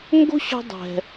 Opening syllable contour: high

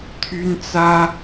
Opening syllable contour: high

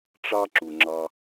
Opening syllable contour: high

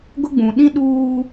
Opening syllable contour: high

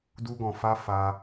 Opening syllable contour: high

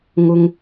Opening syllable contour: high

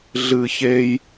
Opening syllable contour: low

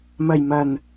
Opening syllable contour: low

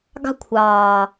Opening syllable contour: high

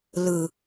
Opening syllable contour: low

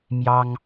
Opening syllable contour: high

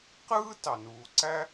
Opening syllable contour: high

